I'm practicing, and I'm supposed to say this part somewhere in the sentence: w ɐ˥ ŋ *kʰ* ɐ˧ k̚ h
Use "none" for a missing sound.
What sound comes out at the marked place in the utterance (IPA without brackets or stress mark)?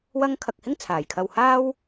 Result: kʰ